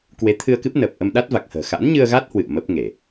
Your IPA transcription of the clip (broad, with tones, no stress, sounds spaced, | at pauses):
k w e˨˦ t̪ʰ ɨ˧ ə̯ k ɨ˦˥ p̚ n əː˨˩ p̚ ʔ ə˧ m ɗ a˦˥ t̚ v a˨˩ k̚ h ə̤ː˨˩ x a̰˧˥ n ɲ ɨ˧ ə̯ ɣ a˦˥ t̚ h w ɨ̰˧˨ ə̯ m ə˦˥ p̚ ŋ e˧˩˨